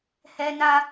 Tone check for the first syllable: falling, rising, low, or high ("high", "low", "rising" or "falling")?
high